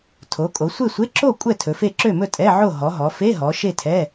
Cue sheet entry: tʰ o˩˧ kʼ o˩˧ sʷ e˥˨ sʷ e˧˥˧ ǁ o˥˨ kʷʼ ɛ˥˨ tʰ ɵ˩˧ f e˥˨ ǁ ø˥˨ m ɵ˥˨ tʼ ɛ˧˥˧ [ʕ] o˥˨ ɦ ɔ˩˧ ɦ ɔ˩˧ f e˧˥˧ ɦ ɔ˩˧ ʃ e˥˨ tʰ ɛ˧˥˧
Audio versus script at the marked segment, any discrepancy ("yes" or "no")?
no